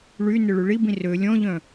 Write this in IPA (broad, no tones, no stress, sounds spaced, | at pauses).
ɭ y n ʏ ɭ y ɭ i b ĩ r ø lʲ ɔ̃ ʎ œ̃